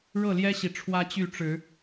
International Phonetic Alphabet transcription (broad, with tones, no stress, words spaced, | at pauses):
ɻɤ˥˨ljɛ˦ɕi˨ ʈ͡ʂʰwä˦t͡ɕy˥˨ ʈ͡ʂɻ̩˨˦